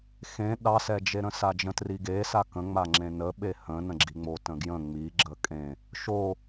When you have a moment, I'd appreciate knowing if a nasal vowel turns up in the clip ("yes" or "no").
yes